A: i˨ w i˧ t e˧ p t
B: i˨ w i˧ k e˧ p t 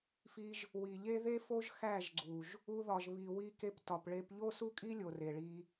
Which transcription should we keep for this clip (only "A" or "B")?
B